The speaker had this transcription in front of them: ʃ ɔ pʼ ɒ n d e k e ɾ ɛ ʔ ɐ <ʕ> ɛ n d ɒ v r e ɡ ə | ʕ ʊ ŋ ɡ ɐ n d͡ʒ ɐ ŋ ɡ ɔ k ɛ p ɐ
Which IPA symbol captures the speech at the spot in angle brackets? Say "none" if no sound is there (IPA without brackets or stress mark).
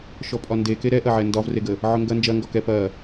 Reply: ʕ